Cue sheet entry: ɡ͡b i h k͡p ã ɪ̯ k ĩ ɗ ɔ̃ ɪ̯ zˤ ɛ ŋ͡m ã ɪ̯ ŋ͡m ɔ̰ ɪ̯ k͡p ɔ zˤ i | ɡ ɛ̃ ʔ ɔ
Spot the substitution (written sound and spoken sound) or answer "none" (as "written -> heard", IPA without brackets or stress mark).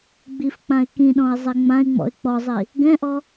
h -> f